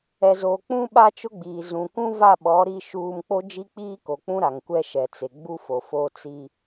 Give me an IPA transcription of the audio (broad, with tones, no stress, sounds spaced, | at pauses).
ɛ˨ z oː˨ k͡p ũ˦ ɓ a˦ t͡ʃ ʊ˦ ɡ͡b iː˨ z ũ˨ k ũ˦ v a˦˨ ɓ ɔ˨˦ ɾ i˦ ʃ uː˦ m k͡p o˦ d͡ʒ i˦ k͡p iː˦ k o˨ k͡p ũ˦ ɾ a˨ ŋ kʷ ɛ˦ ʃ ɛ˨ t͡s e˨ ɡ͡b u˦ f o˨ f o˦ t͡s i˦